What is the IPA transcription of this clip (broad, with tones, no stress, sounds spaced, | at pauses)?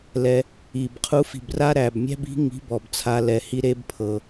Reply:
l ɛ˩ | i˩ b qʰ u˨˦ f i̤˩ b r a˦ ɾ æ˩ b mʲ æ̤˦ b i̤˨˦ ŋ i̤˨˦ b ɔ˩ b t͡sʰ a˨˦ l ɛ˩ h i˦ ɾ e˦ b pʰ ɤ˩